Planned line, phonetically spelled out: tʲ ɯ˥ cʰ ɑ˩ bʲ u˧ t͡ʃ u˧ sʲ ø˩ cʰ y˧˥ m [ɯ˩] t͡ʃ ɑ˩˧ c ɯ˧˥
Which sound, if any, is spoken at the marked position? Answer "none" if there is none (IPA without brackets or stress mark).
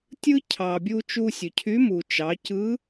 u˩